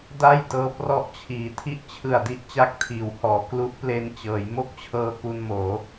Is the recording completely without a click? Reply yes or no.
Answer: yes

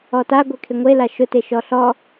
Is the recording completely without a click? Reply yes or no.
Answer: yes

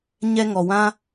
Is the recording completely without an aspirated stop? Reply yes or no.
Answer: yes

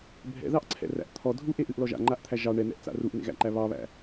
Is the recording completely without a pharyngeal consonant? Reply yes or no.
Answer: yes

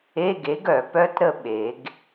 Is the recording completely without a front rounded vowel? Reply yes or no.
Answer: no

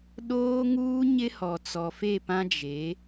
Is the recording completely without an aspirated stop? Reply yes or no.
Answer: yes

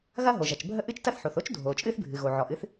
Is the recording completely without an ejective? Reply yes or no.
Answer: no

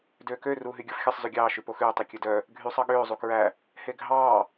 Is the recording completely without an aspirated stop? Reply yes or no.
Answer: yes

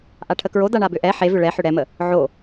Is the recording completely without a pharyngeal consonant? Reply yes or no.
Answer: no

